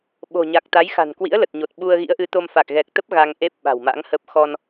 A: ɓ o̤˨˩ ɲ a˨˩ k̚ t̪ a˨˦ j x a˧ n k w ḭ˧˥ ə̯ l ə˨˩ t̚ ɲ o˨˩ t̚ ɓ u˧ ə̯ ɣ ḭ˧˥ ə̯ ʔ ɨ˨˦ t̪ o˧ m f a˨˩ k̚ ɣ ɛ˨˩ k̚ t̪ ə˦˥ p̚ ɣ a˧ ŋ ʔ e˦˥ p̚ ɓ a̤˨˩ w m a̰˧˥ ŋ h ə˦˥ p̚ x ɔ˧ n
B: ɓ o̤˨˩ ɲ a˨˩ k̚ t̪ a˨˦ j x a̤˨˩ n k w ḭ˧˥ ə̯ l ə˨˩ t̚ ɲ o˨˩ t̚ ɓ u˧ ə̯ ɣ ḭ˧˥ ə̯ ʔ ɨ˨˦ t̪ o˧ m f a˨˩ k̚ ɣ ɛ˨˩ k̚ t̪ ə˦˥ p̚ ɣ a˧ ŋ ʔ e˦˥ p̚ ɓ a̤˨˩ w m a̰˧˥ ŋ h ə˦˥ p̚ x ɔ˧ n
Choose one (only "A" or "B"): B